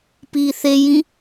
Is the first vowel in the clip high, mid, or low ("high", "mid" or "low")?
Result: high